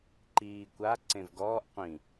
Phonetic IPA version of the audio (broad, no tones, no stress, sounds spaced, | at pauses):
ǃ iː kʷ a ǀ ẽ v ɡ ɔː ʔ qʷ ĩ